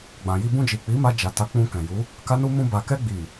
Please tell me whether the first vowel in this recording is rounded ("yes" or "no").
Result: no